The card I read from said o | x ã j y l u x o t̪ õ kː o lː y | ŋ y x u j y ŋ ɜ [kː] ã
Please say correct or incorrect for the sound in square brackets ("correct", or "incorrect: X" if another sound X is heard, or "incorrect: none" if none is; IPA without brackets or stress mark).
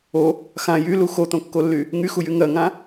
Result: incorrect: ŋ